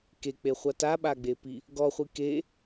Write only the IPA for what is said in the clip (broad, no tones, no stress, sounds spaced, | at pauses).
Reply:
k e k͡p e χʷ a t a ɓ a ɡ͡b e p i | ɡ ɔ χʷ i k e